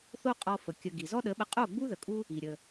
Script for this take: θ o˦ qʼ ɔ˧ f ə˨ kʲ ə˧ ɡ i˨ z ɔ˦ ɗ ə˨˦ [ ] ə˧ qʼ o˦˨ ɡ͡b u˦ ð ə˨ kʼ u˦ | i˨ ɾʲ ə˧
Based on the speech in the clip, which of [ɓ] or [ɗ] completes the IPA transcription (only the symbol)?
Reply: ɓ